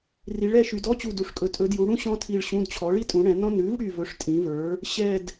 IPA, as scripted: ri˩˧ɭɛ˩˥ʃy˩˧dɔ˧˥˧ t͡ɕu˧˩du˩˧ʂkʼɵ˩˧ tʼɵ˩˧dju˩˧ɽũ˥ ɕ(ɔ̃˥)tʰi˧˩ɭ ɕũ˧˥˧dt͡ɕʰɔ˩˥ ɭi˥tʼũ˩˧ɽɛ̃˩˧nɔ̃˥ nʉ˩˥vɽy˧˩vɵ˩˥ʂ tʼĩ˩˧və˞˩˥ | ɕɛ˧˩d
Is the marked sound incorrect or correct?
correct